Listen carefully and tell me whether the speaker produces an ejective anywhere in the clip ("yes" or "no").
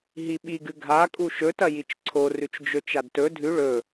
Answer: yes